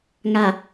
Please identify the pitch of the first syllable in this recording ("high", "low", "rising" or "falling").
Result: low